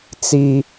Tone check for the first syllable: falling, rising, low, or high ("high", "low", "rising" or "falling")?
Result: high